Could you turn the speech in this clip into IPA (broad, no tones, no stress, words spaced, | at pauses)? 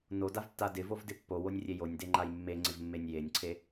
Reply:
nodavtːa dɪvovdɪ pːowonʲrʲe jonʲdeŋ͡ǃaj mːeŋ͡ǀɪvmːenʲ jenʲǀʰe